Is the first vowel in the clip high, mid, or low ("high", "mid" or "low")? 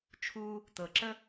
high